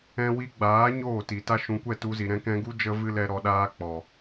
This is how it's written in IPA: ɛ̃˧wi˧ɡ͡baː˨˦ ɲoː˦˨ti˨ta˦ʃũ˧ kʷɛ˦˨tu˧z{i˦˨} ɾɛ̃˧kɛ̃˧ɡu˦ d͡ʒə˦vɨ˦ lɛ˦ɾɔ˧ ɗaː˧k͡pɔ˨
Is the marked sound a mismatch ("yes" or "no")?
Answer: yes